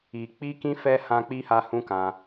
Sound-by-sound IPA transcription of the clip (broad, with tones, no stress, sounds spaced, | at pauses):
i˧ k͡p i˦ k ĩ˦ f ɛ˧ h ã˧ k͡p i˧ h a˧ h ũ˦ k ã˧